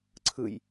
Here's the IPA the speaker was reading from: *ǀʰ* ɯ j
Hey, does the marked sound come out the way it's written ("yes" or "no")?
yes